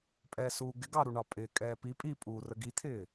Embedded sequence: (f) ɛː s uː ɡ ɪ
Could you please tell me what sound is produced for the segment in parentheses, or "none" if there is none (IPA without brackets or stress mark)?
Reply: pʼ